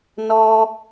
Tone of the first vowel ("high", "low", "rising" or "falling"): high